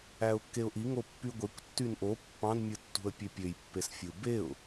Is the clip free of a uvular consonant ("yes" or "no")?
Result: yes